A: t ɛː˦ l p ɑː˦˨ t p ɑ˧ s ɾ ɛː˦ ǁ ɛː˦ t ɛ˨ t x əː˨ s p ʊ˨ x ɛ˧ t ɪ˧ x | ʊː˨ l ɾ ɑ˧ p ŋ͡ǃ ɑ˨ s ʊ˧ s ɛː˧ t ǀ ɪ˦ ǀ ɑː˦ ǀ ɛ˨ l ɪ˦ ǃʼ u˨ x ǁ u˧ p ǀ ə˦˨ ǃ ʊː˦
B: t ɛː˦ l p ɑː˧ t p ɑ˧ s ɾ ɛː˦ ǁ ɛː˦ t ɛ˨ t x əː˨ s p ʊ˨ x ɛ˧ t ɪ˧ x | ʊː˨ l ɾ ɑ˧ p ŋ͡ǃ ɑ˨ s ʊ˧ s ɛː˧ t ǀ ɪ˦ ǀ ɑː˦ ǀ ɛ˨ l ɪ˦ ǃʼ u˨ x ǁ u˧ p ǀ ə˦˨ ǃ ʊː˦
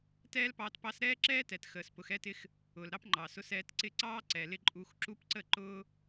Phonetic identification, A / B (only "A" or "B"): B